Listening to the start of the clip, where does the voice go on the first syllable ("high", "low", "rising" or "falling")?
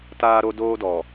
high